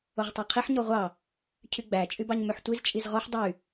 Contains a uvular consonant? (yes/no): yes